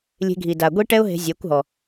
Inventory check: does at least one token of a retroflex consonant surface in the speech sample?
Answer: yes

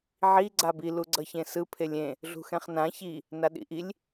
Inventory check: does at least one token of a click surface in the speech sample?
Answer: yes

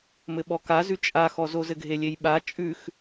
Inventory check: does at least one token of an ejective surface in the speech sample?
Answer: yes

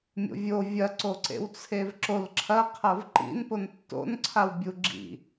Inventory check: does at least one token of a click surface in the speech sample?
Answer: yes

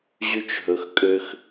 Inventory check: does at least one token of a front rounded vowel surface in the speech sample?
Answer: yes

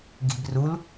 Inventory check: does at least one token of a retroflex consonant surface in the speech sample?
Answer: no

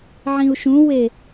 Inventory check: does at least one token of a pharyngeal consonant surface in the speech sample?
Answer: yes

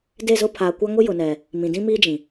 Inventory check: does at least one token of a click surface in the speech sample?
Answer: no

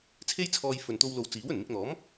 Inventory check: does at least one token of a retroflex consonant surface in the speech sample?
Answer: no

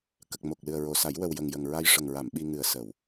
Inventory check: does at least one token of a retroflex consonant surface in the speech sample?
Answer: yes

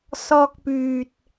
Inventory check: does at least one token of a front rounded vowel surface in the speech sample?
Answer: yes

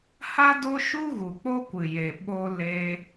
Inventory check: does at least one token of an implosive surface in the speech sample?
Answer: yes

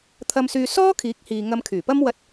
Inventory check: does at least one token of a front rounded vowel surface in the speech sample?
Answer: yes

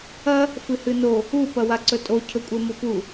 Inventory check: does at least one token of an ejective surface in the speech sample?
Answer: yes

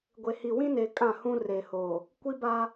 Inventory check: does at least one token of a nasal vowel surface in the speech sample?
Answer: yes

